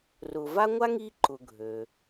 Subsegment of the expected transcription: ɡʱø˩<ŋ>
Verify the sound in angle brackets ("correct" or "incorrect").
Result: incorrect